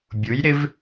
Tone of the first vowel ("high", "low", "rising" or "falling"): rising